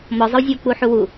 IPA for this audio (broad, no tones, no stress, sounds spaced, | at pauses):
m ɔ zˤ ə w zʲ o w k͡p u ħ u w u